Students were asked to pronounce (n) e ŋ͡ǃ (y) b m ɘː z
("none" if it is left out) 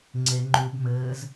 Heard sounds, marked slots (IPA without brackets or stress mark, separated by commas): ŋ͡ǀ, u